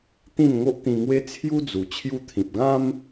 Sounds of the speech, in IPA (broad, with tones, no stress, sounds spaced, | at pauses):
t̪ ĩ˥˧ n ŋ o˦ ʔ t̪ ĩ˧ ŋ w e˦ t͡sʰ j u˦ d͡z u˨˩ t͡ɕʰ j u˧ t̪ʰ ĩ˨ p̚ ɡ ã˦ m